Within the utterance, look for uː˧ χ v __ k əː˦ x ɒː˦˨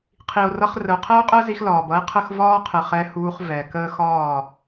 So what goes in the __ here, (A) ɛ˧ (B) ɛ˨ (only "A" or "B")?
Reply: B